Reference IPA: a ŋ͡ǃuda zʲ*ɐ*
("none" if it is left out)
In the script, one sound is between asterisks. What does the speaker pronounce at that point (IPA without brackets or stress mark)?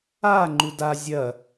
ɐ